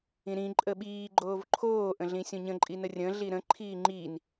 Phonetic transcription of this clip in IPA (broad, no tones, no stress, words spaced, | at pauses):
ĩɾĩ ǃʼəɓiː ɡ͡ǃoːvǃʰoː ʔə̃ɮĩsʲõɲə̃ ǃʼinərʲə̃ ɮiɾə̃ ǃʰiːŋ͡ǃin